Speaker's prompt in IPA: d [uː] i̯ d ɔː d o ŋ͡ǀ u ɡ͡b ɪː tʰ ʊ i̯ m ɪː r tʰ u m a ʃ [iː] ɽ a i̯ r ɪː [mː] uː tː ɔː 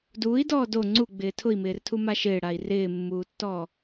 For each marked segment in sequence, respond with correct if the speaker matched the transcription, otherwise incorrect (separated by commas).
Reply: correct, incorrect, correct